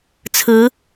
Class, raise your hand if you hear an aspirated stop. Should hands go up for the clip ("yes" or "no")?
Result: yes